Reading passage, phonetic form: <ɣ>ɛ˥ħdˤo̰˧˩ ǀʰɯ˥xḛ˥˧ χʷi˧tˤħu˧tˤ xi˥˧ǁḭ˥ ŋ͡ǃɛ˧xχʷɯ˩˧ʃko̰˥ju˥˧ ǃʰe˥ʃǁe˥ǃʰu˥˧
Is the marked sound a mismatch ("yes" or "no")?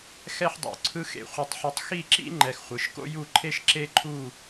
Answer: yes